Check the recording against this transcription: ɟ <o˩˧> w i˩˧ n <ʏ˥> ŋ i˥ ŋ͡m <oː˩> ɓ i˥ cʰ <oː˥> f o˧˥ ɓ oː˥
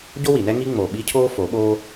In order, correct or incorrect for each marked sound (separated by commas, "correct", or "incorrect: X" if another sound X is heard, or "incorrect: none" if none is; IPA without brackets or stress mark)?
incorrect: o˥, incorrect: ɛ˥, incorrect: oː˧, correct